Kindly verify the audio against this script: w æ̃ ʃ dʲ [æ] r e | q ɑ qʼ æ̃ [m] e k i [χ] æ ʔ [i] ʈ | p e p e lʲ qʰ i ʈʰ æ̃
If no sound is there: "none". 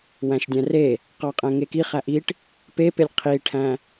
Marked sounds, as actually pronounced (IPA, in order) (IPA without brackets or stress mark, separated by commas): æ̃, ŋ, χ, i